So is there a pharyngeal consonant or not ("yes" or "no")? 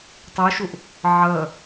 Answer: yes